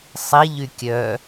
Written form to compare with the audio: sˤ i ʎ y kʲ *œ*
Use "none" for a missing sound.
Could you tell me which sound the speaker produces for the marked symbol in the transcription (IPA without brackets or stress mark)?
œ